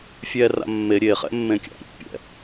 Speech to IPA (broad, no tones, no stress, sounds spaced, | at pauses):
fʲ ɛ r a̰ mː e ɾʲ e χ ɛ̰ mː ẽ kʲ a̰ ɾʲ ṵ pʲ ɛ̰